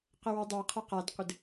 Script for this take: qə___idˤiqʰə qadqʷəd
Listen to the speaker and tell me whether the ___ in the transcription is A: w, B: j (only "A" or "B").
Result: A